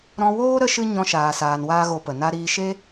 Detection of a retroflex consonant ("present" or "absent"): absent